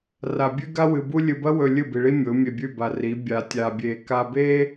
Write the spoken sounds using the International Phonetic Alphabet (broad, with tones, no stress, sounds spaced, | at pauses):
r a˨ bʲ ʉ˦ ɡ a˦ w ɨ˨ b u˦ lʲ ɨ˨ b ɐ˦ w ɵ˨ lʲ ɨ˦˨ b i˨ ɭ i˦ mʲ o˨˦ mʲ e˨ bʲ ʉ˦˨ b a˨ r i˨˦ bʲ a˨ tʲ a˨ bʲ e˨ k a˨ b e˦